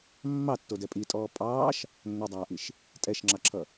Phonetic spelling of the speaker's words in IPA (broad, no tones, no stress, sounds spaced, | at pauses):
mː ɑ tː o d ɛ pʼ i tʼ ɔː pʼ ɑː ʃ | nː o dˤ aː ʔ i ʃ | tʼ ɛ ʃ ŋ͡ǁ ɑ ǁʰ ʌ